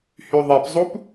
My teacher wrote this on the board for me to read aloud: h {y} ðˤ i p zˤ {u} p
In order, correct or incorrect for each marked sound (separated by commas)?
correct, correct